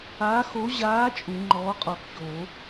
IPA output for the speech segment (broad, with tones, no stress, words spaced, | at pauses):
aː˨˥xo˨˥ ʑaː˨˥ t͡ʃʼu˨˩˦ŋ͡ǃɔː˨˥qʼɔ˨˩˦kçoː˨˩˦